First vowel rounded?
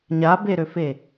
no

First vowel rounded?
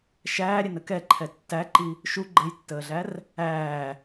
no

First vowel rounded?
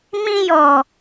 no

